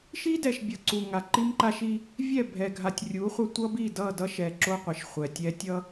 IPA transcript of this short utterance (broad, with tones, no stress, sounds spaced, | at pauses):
ʃ i˦ d ɛ˨ ʃ bʲ ʌ˨ ǀ u˨ ŋ a˨ ǃ i˦ m ǃ a˦ ʃ i˦ | vʲ ɛ˦˨ bʱ ɛ˨ ɡʱ a˨ tʲ rʲ u˨˦ χʷ ʌ˦ tʷ ʌ˦ b i˦˨ d ʌ˦˨ d ʌ˦ ʃ ɛ˨ ǁ o˦ qʷ e˨ ʃ χʷ ɛ˨ tʲ ɛ˦ tʲ ʌ˦